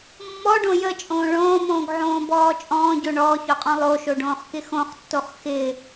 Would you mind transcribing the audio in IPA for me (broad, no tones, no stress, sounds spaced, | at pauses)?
mː ɔ ɖ õ j ə t͡ʃʼ õː ɭ õː m õː ɡ ʕ õː b ɔː t͡ʃʼ ɔ̃ː ɟ o ɳ ɔː ç ɔ qʼ ɔ̃ lˠ o ʃ o ɖ õː χ k ɪ x õ χ tː o χ x ɪ